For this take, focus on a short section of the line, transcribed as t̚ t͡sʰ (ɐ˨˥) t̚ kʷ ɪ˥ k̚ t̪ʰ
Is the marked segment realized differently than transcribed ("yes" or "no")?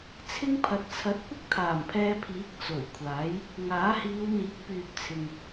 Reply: no